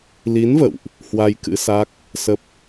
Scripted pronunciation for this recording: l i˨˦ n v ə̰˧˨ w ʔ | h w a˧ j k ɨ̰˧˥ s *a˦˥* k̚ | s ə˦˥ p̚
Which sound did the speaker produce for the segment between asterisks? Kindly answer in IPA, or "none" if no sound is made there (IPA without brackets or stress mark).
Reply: a˦˥